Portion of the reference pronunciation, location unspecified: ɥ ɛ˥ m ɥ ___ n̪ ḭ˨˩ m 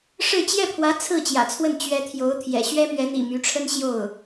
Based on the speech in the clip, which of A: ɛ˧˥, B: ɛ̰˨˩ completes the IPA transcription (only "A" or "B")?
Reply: A